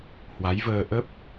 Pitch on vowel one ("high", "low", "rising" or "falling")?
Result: rising